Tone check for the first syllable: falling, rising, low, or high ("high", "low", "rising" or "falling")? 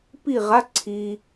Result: falling